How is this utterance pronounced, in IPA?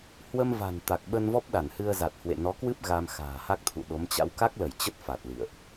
h w ə˧ m v a̤˨˩ n t̪ a˨˩ k̚ ɓ ə˧ n v ɔ˦˥ p̚ ɗ a˧˩ n h ɨ˧ ə̯ z a˨˩ t̚ h w ḛ˧˨ n ɔ˨˦ k w ɨ˦˥ p̚ ɣ a˧ m x a̤ː˨˩ h a˦˥ k̚ t̪ʰ ṵ˧˨ ɗ o˨˦ m t͡ɕ a̰˧˥ w k a˦˥ k̚ l ə˧˩ j t͡ɕ ə˦˥ t̚ f a˨˩ t̚ l ḭ˧˨ ə̯ ʔ

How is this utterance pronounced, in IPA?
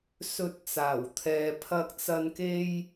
s ɵ˧ t̚ t͡s aː˨˩ w t̪ʰ ɛː˧ pʰ ɐ˥ k̚ t͡s ɐ˥ n k e˥ j

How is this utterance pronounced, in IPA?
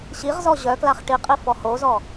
ɕ i ʁ z ɔ ʑ œ k l a χ ʈ i qʼ i f ɔ h o z ɔ

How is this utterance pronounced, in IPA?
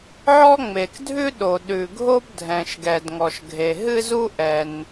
ʕ ɔ˥ ŋ͡m e˩ k dʱ ʉ˥ ɗ o˩ ɗ ʉ˩ ɡʱ o˥ b dʱ ɛ̃˩ ʃ ɡ ɛ˩ d ŋ ɔ˩ ʃ ɡʱ e˩ ɦ ɨ˥ z u˥ ʔ ɛ˩ n

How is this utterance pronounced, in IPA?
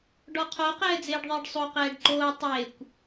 ɖ ɔ qʰ o q ɛː d͡z eː ɖ ðˤ ɪː ɖ sˤ o q ɛː ɖ ǃ oː tˤ e kʷ

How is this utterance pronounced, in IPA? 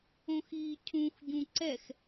õ x iː cʰ ũ x ɟ ũ ǀ ɛ x

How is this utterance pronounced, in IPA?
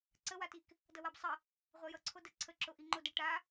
ǀ ə w a t i k | d ʌ w a b sˤ ə | ʁʷ a j ʌ ǀʰ o d ə ǀʰ ə ǁ o ʔ i ŋ͡ǃ o d ə ʈ a

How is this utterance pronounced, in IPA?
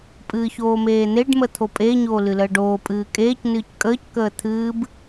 pʼ ɨː ç oː m eː n̪ e ɖ m ə t̪ʰ o pʼ e ɲ oː l ɨ l əː ɖ oː pʼ ɨː kʼ eː c n ɨː c kʼ əː c k əː t̪ʰ ɨː b

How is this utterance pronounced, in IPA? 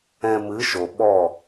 ɛ̃˧ m ɨ˨˦ ʃ o˨ ɓ ɔ˦˨

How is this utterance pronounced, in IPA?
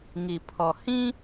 ŋ i˨ pʰ ɔ˨ h ĩ˦

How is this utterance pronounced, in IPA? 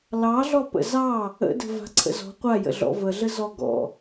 l ɑ ɮ ɔ p ə̰ z ɑ | ə̰ d ə̤ v a̤ ǀʰ ə̰ z ɔ̤ qʷ a j ə̰ ɮ ɔ̰ v ə ɮ ə z ɔ ɡ ɔ̰

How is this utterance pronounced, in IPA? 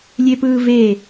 lʲ e p ɯː v e

